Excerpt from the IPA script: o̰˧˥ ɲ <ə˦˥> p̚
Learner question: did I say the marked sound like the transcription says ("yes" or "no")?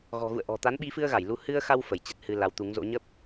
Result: yes